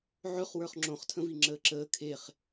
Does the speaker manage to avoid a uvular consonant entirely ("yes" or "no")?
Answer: no